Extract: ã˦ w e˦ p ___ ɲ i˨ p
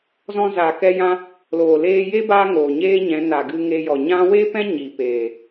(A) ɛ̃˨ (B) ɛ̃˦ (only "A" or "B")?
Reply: B